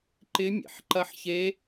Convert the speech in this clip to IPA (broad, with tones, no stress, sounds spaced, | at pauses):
ǃ ɪ˦˥ mʲ ḛ˩˧ ħ ǃ ɐ˦˥ ħ ç e˦˥